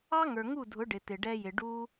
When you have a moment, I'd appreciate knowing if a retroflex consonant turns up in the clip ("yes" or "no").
yes